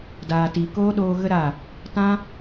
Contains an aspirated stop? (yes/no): no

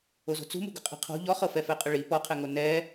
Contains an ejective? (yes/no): yes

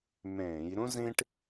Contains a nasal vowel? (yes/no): yes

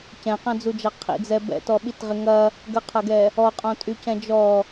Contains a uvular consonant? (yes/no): yes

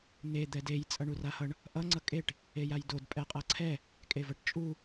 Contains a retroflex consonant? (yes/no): yes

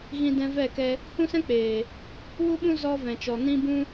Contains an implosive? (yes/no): yes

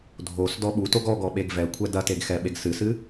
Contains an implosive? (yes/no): yes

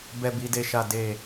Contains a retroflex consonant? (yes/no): no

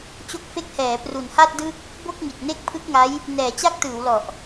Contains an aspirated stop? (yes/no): yes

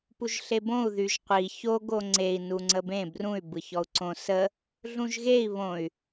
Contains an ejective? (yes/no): no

